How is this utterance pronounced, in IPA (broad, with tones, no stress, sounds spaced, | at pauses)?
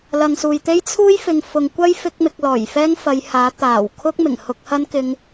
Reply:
l ɐ˨ ŋ s uː˨ j t̪ e˥ j t͡sʰ uː˥ j f ɪ˨ ŋ f ʊ˨ ŋ kʷ ɐ˥ j f ɪ˥ k̚ m ɪ˧ k̚ l ɔː˨˩ j f ɛː˥ ŋ f ɐ˨˧ j h aː˨˥ t̪ aː˨˩ w kʰ ʊ˥ k̚ m ɪ˨˩ ŋ h ʊ˧ k̚ h ɐ˥ n k ɪ˧ ŋ